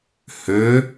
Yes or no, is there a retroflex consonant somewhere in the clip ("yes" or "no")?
no